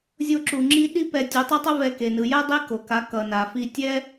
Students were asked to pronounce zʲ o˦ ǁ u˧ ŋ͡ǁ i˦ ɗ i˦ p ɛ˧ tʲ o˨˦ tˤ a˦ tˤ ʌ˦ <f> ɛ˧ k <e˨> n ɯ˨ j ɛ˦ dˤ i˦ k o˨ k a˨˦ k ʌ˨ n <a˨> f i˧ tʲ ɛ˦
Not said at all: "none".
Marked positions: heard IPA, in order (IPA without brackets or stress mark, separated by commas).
v, e˨, a˨